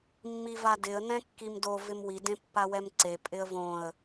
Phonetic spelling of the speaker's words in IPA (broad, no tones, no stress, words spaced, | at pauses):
mːivadɪə̯ nɛ̃kːimdo vɪmwi dẽpːawɛmǀe pʼɪə̯võə̯